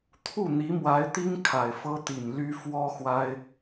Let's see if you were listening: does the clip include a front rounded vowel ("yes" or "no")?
yes